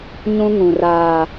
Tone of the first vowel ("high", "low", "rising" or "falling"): high